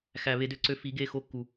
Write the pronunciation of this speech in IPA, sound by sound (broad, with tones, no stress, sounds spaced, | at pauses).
x æ˨ β e˦ d ø˦ ǀ ø˦ f i˨˦ ɡ e˦˨ x o˦ kː u˨